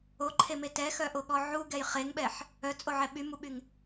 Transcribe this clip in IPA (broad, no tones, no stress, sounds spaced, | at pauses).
o ǃʰ e m e t ɛ x œ ʔ o ɠ ɔ ʕ u ɡ ɛ j χ e ŋ ɓ ɛ ħ | œ t͡sʼ o ʕ ɛ ɓ y m u ɓ y ŋ